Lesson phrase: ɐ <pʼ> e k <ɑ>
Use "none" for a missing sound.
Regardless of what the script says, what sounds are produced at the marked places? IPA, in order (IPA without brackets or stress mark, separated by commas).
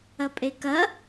pʼ, ɐ